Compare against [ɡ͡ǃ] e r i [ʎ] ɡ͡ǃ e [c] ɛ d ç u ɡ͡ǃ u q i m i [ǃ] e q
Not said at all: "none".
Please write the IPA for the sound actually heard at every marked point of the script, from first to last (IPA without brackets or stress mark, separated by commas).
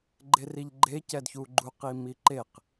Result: ɡ͡ǃ, ʎ, c, ǃ